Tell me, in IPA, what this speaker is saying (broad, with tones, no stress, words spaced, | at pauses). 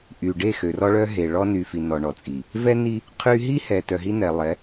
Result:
ʔy˨ ɖe˦˨xø˨rɔ˦ɭœ˦ ɦe˨ ɭɔ˦ny˨fi˨ nɔ˨ɳɔ˨t͡sʼi˨ | vɛ˦ni˦ | qʰy˦ ɦi˦ hɛ˨ tœ˨ɦi˦nɛ˨ lˠɛ˨˦